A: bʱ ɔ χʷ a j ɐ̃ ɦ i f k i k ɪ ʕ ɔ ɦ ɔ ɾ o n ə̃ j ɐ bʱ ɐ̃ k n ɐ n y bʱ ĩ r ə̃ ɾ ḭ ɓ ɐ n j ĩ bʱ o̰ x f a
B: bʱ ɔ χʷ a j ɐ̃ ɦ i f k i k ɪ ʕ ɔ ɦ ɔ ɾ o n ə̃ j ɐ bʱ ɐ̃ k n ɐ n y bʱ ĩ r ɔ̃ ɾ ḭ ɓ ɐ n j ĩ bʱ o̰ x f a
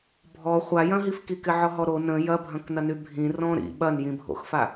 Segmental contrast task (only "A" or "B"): B